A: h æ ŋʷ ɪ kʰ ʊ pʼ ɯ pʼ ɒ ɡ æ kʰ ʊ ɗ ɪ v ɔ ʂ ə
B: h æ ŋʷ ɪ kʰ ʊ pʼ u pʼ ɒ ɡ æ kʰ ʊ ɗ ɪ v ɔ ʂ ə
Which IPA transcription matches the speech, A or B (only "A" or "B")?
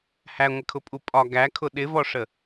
B